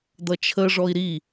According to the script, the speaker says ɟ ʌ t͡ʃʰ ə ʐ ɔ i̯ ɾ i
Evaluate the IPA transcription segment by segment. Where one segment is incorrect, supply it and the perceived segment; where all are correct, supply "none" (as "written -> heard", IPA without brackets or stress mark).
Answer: ɟ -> d̪